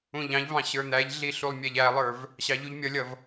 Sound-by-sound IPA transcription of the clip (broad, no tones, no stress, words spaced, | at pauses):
ũʎɑ̃ʎvɑ̃ ɕə˞n̪æʎɮi ɬulˠmʲæʎælˠə˞v | ɕɑʎuʎmʲʌlʲʌv